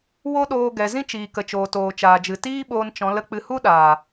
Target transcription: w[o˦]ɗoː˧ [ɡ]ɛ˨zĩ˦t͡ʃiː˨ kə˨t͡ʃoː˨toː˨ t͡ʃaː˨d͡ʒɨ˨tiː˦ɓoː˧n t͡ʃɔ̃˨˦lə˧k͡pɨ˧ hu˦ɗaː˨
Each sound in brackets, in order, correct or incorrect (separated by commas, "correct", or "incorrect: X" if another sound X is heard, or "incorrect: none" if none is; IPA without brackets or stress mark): correct, correct